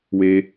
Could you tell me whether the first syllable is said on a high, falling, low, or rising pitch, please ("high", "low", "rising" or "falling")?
low